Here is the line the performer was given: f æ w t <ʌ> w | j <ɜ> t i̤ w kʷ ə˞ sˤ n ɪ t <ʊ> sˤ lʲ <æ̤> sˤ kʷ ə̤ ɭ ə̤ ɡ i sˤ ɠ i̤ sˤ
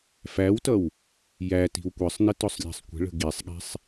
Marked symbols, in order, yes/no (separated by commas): yes, no, yes, yes